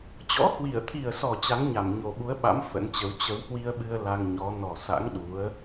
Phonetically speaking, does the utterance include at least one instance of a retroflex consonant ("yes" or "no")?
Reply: no